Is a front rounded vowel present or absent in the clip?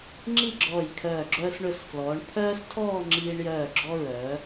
present